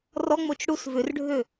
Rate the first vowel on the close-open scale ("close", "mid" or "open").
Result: mid